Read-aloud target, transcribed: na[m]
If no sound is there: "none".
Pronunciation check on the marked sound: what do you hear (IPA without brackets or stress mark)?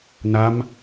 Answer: m